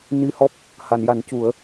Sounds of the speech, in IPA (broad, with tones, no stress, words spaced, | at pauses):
ni˧hɔ˦˥p̚ | ha˨˩˨nja˨˩˦ncu˨˩˦ə̯